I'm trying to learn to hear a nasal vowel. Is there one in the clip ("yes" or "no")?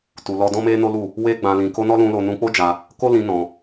yes